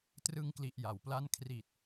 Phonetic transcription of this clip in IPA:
t r ɯ˧ ŋ k l i˨˩ ʔ j a˨˩ w p l a˥˩ n kʰ r i˨˩ t̚

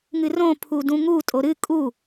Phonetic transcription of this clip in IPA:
ŋ ɨ r õ pʰ u d ũ ŋ u tʼ o ɾ ɨ kʼ u

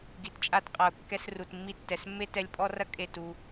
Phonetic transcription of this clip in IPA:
ɡ i˨ t t͡ʃʼ a˧ t qʼ a˨ ʊ̯ kː ɛ˧ s r u˨ t mː i˧ tː ɛ˨ s mː e˦ t ɛ˧ lʲ pʼ ɔ˦ r ɐ˦ kʼ e˦˨ t u˧

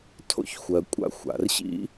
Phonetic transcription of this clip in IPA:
tʰ o̰˥ ç xʷ ɜ˩ kʷʼ a̰˥ xʷ a̰˩ r ɕ ḭ˥

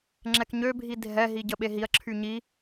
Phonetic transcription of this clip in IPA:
ŋ͡ǁ ɛ k ɲ ø bʱ i dʱ ɛ ɦ i ɟ ə ɓ e ɦ i ɐ̯ ǁʰ y ɲ i

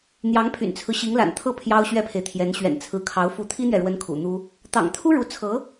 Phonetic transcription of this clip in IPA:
n̪ j ɑ˧˥ ŋ pʰ y̰˨˩ n t͡sʰ ɹ̩˦ ɕ i˧˥ ŋ l a̰˨˩ n t̪ʰ ɤ˥˩ pʰ j ɑ˥ ʊ̯ ɕ ɥ ɛ˥ pʰ e˨ ɪ̯ t̪ʰ j ɛ˧˥ n ɕ ɥ ɛ̰˨˩ n t͡sʰ ɹ̩˧˥ kʰ ɑ˧˥ ʊ̯ f u˧˥ t̪ʰ i˥ n̪ ɥ ɛ˨ ɻ w ə˧˥ n kʰ ṵ˨˩ n̪ u˥ | t̪ ɑ̰˨˩ ŋ t̪ʰ u˥ ɻ u˧˥ t͡sʰ ɤ˧˥

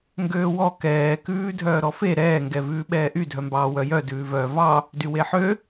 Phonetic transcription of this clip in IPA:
ŋ ɡ øː w ɔ k ɛː k ʉː dʱ œː ɾ ɔ f e ɾ ɛː ŋ ɡ ɛ v ʉː ɓ ɛː ʔ y dʱ œ m b ɑː w œ j œ d ʉː v œː v ɑ | d y w e ħ ø

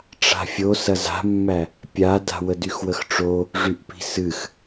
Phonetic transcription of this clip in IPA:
ʈ͡ʂ a̤ fʲ o s ɐ z a̤ mː æ | pʲ a d a̤ w ə d y x w ə x ʈ͡ʂ o | ʐ y ʔ p i̤ s ɨ x

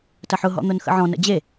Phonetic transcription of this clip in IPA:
t ɐ ħ ʊ ɦ ɔ̰ n̪ ʊ n x ə̰ ʕ ɔ̃ n ə̰ d͡ʑ e

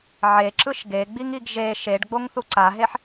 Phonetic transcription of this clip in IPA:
ʕ e ǁ ɯ ʃ ɡ e ɡ͡b i ŋ i ɡ ʒ e ʃ e ɖ ɡ͡b o ŋ θ u ǀ a ɦ e ħ

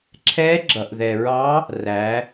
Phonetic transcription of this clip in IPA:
ǁʰ ɛ˧˥ ɡ͡ǁ ʌ˩ ʔ ð ɛ˩ ɹ ɑ˧˥ | r æ˩˧

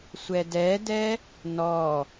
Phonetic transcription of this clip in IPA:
sʷ ɛ d ɛ d ɛ | n ɔ

